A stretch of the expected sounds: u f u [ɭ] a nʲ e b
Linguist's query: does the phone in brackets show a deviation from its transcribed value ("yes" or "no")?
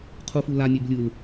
yes